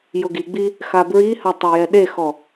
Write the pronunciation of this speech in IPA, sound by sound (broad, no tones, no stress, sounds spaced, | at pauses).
j ʊ ɡ i ɡ͡b i | x a b ɹ i h a tˤ a j ɛ ɗ e x ɔ